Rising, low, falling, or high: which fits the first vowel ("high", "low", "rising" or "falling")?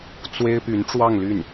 high